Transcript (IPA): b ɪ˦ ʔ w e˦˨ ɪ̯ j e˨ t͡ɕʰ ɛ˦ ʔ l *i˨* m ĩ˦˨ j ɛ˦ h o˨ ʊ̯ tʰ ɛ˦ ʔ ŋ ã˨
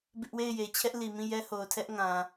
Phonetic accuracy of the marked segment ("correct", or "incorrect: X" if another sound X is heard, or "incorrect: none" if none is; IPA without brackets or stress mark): correct